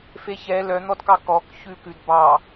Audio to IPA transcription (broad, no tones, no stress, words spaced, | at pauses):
feçɛ lœn̪ɔdkɑ kɔk çʉkʉd bɑ